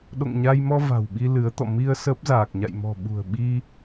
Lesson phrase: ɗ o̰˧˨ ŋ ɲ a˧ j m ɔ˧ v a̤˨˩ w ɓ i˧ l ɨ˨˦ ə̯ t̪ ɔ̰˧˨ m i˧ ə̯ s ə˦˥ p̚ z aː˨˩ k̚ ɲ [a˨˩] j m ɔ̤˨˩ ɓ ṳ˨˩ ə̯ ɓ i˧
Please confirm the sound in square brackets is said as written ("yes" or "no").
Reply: no